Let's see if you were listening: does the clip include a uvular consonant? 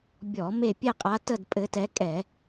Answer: yes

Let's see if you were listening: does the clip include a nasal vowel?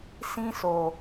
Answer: yes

